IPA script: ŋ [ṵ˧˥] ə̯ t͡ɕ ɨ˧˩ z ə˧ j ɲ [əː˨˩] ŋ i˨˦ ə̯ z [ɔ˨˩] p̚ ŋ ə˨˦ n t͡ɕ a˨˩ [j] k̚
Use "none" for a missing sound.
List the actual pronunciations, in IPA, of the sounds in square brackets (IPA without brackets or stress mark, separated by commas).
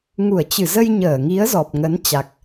u˧˩, əː˧˩, ɔ˨˩, none